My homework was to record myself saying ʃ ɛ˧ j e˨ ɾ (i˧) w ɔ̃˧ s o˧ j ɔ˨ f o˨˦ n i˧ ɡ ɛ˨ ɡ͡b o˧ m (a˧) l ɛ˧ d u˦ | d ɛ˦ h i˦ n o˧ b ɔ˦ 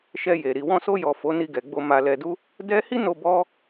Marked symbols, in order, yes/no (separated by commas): no, yes